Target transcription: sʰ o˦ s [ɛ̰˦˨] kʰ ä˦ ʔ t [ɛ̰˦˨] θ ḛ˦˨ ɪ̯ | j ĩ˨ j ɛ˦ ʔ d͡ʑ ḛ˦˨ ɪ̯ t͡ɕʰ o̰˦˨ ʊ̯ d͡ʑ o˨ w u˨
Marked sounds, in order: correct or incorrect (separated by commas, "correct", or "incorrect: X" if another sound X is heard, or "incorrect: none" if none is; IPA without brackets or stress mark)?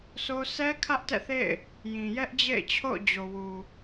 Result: incorrect: ɛ˦, correct